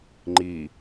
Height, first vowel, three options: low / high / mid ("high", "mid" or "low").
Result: high